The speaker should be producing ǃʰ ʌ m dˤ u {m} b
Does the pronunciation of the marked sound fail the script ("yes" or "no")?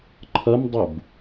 yes